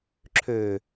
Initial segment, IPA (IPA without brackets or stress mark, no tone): ǁʰ